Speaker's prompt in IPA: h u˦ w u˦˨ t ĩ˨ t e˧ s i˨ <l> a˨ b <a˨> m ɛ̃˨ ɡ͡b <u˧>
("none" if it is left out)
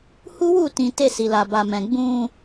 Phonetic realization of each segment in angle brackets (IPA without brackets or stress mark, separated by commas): l, a˨, ũ˧